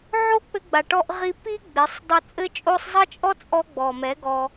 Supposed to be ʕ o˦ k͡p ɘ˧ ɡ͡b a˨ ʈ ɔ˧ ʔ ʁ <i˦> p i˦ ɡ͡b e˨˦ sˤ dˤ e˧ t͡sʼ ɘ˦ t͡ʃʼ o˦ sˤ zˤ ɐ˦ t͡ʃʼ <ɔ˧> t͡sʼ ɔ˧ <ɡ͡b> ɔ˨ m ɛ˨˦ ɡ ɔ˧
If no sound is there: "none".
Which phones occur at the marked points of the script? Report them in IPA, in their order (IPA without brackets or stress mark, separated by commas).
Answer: i˧, ɔ˦, ɡ͡b